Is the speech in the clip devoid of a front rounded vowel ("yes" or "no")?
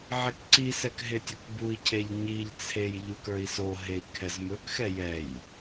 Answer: yes